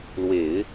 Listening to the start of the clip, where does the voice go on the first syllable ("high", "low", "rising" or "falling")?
low